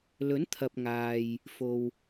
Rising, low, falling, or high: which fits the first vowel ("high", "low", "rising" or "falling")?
rising